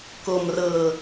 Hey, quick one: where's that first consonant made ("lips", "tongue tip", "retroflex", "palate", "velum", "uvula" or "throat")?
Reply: velum